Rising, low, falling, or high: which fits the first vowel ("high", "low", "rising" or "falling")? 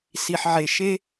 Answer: low